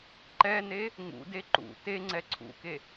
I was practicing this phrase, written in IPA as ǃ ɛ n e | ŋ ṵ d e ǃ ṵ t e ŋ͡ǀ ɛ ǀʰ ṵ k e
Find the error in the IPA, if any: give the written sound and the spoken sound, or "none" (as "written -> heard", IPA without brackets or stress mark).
none